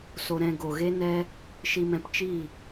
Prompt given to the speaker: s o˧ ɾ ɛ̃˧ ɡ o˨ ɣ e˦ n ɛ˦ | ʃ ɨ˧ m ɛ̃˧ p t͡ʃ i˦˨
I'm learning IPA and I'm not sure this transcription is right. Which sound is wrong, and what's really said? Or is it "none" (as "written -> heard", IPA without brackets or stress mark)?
ɨ˧ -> i˧